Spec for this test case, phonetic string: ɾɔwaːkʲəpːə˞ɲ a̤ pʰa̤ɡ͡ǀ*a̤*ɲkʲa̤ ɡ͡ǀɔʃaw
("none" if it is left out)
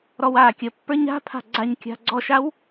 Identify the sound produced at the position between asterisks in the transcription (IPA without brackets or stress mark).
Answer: a